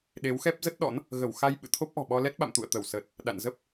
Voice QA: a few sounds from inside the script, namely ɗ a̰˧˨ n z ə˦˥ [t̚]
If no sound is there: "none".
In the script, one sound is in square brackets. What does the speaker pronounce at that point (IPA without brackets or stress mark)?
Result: p̚